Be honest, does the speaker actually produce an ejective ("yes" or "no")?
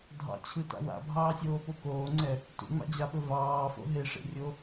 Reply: no